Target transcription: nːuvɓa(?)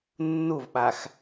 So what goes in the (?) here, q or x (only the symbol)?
x